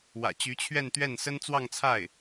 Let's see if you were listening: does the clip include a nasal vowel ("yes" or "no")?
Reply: no